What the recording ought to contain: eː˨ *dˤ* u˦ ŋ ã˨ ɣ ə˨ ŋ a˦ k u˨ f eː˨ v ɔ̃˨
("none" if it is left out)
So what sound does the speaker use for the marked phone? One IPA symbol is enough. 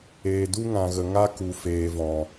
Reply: d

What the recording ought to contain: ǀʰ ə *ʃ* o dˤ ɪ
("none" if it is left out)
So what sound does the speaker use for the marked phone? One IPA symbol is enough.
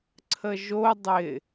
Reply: ʒ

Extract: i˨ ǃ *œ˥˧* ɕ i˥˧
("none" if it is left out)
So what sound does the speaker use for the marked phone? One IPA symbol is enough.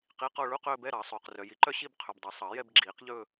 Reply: œ˥˧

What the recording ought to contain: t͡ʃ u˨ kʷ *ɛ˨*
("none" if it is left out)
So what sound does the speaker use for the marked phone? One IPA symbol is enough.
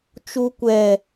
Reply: ɛ˨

